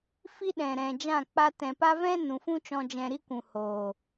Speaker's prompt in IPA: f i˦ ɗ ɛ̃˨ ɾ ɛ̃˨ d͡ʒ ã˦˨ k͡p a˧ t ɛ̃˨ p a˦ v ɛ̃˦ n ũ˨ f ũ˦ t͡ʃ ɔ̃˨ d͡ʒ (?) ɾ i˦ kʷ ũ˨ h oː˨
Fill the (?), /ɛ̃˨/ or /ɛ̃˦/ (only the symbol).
ɛ̃˨